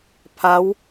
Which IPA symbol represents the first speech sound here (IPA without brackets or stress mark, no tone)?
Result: pʰ